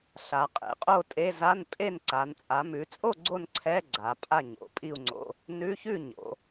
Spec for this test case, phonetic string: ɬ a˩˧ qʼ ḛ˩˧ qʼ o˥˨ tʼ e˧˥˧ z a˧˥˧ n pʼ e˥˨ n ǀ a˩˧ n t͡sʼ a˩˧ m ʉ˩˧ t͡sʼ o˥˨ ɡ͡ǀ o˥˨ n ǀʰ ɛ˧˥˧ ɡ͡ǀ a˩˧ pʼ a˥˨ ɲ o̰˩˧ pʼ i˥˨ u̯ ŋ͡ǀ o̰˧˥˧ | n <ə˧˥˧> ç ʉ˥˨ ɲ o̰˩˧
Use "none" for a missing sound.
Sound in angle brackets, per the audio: ʉ˧˥˧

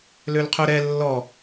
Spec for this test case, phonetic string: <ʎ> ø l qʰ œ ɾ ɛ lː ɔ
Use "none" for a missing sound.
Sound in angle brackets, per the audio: l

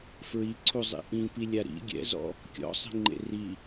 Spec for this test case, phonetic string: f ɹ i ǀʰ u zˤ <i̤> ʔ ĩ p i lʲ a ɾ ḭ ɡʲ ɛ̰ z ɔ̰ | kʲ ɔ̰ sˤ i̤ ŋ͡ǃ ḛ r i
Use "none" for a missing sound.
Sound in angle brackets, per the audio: ḭ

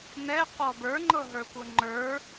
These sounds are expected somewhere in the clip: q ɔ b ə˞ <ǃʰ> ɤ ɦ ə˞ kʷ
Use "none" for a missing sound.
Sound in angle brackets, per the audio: ŋ͡ǃ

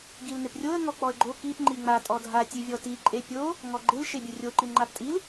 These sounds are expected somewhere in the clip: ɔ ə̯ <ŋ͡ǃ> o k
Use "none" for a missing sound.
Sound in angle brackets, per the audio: ɡ͡ǃ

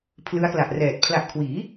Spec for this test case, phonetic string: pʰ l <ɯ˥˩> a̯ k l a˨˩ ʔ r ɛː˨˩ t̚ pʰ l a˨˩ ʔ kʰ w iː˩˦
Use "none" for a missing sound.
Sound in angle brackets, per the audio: ɯ˦˥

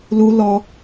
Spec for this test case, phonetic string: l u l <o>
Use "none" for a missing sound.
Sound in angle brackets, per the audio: ɔ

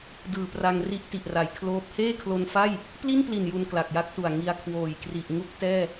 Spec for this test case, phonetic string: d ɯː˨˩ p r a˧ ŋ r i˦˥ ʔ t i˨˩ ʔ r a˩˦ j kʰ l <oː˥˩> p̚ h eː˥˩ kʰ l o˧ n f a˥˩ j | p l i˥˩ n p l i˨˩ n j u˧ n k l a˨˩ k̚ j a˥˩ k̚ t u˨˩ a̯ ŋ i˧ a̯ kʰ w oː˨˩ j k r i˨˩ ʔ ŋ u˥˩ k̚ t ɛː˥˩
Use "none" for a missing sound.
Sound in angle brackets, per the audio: oː˦˥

